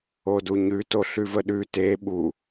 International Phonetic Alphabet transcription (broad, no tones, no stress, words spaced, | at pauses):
oduɲʉ toɬʉvəɗʉ te ɓu